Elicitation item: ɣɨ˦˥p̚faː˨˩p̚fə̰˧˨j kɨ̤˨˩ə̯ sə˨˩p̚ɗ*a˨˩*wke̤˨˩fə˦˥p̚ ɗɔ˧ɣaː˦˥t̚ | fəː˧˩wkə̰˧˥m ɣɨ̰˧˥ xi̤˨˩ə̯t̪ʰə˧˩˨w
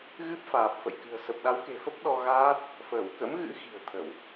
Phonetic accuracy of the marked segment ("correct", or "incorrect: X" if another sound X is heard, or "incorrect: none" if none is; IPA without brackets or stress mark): incorrect: a˨˦